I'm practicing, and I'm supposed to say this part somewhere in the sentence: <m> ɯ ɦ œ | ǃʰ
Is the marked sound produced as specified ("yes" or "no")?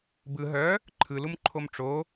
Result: no